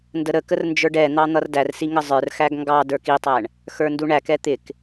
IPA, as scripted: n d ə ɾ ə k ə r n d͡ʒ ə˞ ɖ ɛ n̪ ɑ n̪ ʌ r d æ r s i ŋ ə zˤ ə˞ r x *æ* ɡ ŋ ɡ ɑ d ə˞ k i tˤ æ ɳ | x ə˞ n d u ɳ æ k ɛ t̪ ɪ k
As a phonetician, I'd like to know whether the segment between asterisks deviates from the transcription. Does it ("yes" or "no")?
no